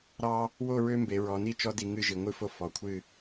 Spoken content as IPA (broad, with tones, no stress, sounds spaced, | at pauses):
ɾ ɑ˦ | w o˥˨ ɹ ø˦ m b e˩˧ ɹ ɔ˩˧ n i˥˨ t͡ʃ ɔ˦ d i˦ ŋ ɨ˥˨ ʒ i˨˩ ŋʷ ɨ˥˨ f o˦ f ɔ˩˧ kʷʰ ɨ˥˨